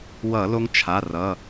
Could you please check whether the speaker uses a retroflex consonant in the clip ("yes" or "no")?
no